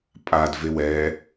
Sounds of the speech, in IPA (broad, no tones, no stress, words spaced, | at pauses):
pʼad vewɛ